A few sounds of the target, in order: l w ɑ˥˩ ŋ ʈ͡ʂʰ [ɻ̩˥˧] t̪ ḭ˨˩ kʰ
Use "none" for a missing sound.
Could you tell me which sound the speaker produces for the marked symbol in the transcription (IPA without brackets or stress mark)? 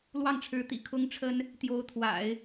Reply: ɻ̩˧˥